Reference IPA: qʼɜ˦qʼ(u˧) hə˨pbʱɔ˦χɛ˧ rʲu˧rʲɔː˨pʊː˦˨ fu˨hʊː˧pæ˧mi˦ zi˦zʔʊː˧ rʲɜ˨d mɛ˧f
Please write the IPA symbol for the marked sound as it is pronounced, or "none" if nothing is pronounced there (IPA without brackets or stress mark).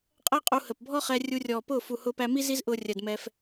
u˧